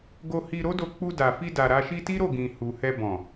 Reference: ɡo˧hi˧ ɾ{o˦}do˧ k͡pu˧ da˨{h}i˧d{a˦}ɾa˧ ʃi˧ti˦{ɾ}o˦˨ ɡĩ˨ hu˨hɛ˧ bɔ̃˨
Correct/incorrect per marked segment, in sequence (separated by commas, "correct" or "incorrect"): correct, incorrect, incorrect, correct